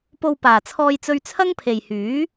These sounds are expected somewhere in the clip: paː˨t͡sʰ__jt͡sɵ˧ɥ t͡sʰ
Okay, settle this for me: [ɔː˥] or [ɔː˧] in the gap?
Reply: ɔː˧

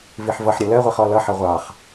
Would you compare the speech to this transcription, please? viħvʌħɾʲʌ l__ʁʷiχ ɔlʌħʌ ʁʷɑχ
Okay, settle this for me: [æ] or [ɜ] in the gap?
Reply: ɜ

